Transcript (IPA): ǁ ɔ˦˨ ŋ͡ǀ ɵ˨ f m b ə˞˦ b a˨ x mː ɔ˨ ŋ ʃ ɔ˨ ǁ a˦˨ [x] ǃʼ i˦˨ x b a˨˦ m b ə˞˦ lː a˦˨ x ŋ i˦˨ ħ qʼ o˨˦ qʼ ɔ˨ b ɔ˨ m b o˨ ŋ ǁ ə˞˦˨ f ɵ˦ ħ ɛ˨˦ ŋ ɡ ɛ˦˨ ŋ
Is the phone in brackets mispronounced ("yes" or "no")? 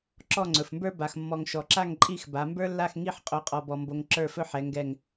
yes